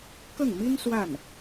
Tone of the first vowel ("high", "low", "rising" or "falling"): falling